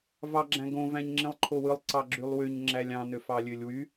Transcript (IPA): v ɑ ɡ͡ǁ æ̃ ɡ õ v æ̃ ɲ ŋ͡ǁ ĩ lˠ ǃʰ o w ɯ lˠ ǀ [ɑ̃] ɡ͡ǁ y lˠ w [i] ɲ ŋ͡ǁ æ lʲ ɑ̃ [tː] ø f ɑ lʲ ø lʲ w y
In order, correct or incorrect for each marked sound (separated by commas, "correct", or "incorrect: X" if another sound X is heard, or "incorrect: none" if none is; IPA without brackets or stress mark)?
incorrect: ɑ, incorrect: y, incorrect: n